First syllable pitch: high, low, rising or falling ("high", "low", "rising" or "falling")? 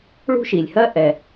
high